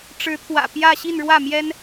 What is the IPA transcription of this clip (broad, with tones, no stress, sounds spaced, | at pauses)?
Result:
ʈ͡ʂ ɻ̩˧˥ t̪ʰ w ä̰˨˩ p j ä˥˧ ɕ i˥˧ n ɻ w ä˥˩ m j ɛ˥ n